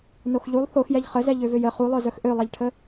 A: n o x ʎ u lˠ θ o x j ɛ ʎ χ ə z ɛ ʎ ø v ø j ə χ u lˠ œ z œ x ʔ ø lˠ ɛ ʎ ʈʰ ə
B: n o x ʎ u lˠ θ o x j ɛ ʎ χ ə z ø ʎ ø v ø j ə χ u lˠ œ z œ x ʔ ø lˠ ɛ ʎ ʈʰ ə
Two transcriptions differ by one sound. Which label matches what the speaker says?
A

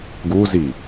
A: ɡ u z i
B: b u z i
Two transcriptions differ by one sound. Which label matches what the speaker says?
A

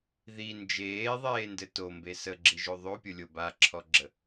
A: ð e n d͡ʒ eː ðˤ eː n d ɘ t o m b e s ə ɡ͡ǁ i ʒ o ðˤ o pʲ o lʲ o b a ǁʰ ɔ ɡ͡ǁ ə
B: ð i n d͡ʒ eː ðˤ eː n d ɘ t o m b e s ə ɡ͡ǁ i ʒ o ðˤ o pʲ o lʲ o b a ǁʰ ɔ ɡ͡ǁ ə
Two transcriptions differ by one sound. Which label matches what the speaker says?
B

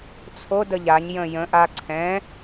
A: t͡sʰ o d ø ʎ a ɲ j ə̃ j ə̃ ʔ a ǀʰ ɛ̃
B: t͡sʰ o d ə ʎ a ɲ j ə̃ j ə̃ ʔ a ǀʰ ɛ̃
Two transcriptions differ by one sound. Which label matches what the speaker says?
B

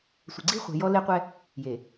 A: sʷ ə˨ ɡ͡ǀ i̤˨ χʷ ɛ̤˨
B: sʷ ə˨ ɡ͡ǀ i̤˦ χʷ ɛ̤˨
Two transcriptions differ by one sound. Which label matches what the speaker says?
B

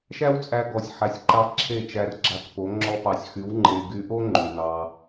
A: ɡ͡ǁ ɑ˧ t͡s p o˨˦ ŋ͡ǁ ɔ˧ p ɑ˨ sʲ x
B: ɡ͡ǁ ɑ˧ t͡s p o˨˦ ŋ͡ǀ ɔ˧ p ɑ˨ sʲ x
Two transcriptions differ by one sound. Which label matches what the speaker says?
A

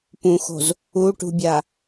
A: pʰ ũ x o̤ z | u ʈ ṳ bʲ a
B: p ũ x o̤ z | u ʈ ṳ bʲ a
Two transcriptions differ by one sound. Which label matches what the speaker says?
B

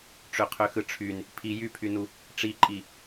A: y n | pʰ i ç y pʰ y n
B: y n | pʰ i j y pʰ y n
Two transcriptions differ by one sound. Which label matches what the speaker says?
B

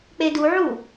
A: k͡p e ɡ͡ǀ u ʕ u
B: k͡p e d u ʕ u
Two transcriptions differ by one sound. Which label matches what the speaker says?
B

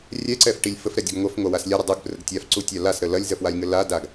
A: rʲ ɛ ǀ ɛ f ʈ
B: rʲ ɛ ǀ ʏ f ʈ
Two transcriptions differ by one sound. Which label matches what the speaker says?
A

